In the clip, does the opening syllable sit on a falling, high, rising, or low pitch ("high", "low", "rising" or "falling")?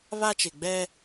high